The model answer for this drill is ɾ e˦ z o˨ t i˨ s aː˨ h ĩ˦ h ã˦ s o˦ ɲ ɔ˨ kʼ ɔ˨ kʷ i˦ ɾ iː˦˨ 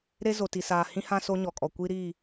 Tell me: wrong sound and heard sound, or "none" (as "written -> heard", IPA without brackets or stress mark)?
none